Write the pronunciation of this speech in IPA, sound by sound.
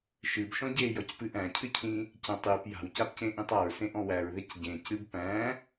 ʃ ɨ b ʃ ɔ̃ ɟ e j ɔ c p ɨ ʔ æ̃ cʰ ɨ cʰ ĩ | c æ̃ tˤ j ɨ p j a̤ w c a p c ẽ ʔ ĩ tˤ a ɹ s ẽ ʔ ɔ̃ w æ ɹ ð e c ɟ ẽ c ɨ b p æ̃

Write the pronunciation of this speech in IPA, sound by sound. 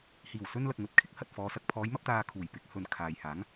h iː˨˩ w s ɵ˧ n l ɐ˨ k̚ ŋ ɵ˨ t̚ kʰ ɪ˥ k̚ h ɐ˨ t̚ f ɔː˨˧ s ɐ˨ k̚ pʰ ɔː˨˧ j m ɐ˧ p̚ t̪ aː˨ kʰ uː˨˩ j p ɪ˨˥ k̚ h ɵ˨ n kʰ aː˨ j h aː˨˥ ŋ

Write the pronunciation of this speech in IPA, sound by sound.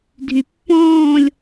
dʱ y pː ɔ̃ː lʲ

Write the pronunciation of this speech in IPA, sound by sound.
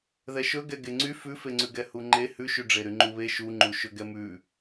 ð ɛ ʃ ɵ ɡ ɛ ɡ e ŋ͡ǀ y f ʉ f e ŋ͡ǀ ʉ ɡ ɛ h u ŋ͡ǃ e h ʉ ʃ y ɖ͡ʐ e ɾ y ŋ͡ǃ u β e ʃ u ŋ͡ǃ u ʃ ɵ ɡ ɛ m ʉ

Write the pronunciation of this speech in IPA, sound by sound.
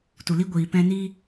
t u˨ l i˦ ɡʷ iː˨ p ɛ̃˧ n iː˦

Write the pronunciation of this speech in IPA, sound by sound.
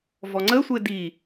v ɔ ŋ͡ǀ ə sʷ e d i

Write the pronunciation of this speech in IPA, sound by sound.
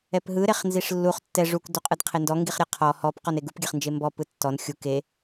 ɛ p ɦ ɯ ɾ e χ n z i ʂ lː u χ tː ɛ ʐ u k d u qʼ ɯ d qʰ e n d ɔ ŋ ɡ i χ ɾʲ ɛ qʰ ɔ h ɔ p q ɔ n e ɡ u p ɡʲ ɛ χ n d͡ʒ e m b ɔ p ɯ tː ɔ n xʲ u k e

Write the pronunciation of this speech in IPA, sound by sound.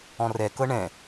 ɔ̃ r ɛ k ɤ ɳ ɛ̃

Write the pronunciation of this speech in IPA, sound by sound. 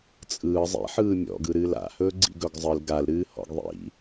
t͡sʼ ɯː zˤ ḭ ħ ɯː mʲ ɔ̰ ɡ ɯ ɾ ɨː l a̰ h ɵː ɡ͡ǀ ḭ ɡ ɵ ɡ zˤ ɨ l ɡ a l ɾ ɨː h ɔ̰ ɡ ðˤ ḭ

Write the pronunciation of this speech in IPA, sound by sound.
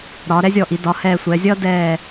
ɾ ɒː˩˧ ɾ ɛ˥ zʲ ɔ˧˩ ʔ i˩˧ d ɒ˩˧ h ɛː˧˩ sʷ ɛː˩˧ zʲ ʌː˥ d ɛː˧˩

